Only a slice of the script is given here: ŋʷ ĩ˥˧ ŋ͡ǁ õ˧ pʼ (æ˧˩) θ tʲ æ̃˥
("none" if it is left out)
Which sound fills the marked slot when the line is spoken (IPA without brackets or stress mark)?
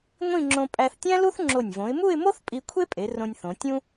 æ˧